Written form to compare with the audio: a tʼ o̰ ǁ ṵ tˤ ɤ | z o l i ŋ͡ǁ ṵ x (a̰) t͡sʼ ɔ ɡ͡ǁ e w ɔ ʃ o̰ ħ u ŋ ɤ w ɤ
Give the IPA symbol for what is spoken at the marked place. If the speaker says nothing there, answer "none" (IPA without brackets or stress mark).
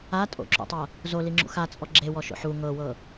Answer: a